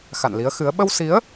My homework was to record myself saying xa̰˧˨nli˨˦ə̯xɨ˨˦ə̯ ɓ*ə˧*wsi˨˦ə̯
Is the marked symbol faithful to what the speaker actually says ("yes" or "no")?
yes